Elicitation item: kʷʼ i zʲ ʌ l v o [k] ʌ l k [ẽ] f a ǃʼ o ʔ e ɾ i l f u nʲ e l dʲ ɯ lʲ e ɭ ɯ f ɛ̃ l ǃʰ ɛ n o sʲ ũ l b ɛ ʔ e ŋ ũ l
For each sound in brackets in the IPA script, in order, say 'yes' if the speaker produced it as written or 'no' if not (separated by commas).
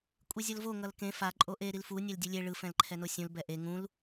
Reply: no, yes